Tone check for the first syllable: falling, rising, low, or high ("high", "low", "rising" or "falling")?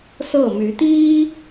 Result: falling